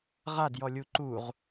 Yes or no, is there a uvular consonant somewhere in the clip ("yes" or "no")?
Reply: yes